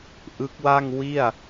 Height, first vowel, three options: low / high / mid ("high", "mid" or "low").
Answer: high